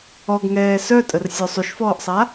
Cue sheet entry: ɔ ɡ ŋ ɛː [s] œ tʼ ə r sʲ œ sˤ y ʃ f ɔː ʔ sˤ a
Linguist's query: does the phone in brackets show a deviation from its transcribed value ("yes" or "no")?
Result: no